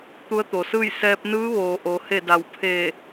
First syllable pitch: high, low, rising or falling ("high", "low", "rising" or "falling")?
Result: rising